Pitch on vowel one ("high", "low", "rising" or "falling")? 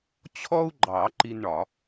high